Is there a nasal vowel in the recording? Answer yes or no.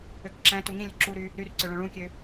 yes